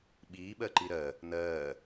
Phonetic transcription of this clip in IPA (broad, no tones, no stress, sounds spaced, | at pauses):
ɓ iː ɓ ɜ ǃ i ɾ ɜ | n ɜː